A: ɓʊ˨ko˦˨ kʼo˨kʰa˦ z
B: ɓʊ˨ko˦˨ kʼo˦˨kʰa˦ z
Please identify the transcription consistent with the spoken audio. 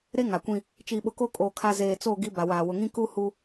B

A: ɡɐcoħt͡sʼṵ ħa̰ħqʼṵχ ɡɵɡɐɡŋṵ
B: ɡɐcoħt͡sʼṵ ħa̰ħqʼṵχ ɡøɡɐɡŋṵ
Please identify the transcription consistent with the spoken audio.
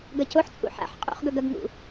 A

